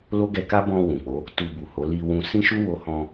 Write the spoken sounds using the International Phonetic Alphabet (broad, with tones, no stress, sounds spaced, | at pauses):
l o˦ ɡ ɛ˧ k a˦ b ɔ̃˧ w ũ˨ k͡p o˨˦ | t u˧ b u˨ h o˨˦ l i˧ w ũ˧ s ĩ˦ ʃ u˦ w o˧ h ɔ̃˧